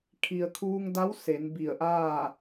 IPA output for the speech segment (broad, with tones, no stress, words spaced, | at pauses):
kʰi˩ə̯kʰuː˧ŋda˧˥w se˩˧n bi˧˩ə̯ʔaː˥˨